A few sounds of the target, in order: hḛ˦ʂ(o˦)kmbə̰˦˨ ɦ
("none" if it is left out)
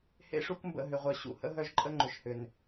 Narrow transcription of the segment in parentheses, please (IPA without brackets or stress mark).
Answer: u˦